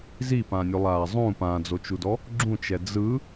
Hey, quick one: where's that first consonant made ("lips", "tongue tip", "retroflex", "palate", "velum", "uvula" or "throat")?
tongue tip